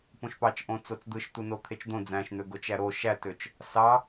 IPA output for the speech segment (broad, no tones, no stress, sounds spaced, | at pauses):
p õ ʃ p ɑ t͡ʃ ʔ õ t͡s o t͡s d̪ ɯ ʃ t̪ u n o t̪ʰ e t͡ʃ d̪ õ d͡z æ̃ ʃ n̪ ø ɡ o t͡ʃ æ ɾ o ʃ æ t ø t͡ʃ | s ɑ